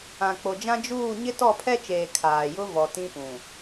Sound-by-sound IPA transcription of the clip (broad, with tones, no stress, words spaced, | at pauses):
ã˨k͡po˨d͡ʒã˦ d͡ʒuː˦˨ ɲɪ˦tɔ˦˨pʰɛ˦t͡ʃeː˨ kʰaː˨jʊ˦ vɔ˨tĩ˦pũ˨